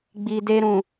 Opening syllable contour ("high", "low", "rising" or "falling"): low